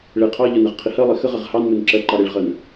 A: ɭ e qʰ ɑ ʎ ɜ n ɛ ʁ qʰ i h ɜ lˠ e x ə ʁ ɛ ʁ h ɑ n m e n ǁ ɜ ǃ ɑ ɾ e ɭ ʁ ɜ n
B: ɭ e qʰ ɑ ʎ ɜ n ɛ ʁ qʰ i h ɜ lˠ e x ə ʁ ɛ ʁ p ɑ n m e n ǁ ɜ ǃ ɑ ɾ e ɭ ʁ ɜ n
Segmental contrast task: A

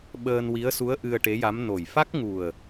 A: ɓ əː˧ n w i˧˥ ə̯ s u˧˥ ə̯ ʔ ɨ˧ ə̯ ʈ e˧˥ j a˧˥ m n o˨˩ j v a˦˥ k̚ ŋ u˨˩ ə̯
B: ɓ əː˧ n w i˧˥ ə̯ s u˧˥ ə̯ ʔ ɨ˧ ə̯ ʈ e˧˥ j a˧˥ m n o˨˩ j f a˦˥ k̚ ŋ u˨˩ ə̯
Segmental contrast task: B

